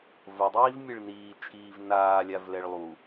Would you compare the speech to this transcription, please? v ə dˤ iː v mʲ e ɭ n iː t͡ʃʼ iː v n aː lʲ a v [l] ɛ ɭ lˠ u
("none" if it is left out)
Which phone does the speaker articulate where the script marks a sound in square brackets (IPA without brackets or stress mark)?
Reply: l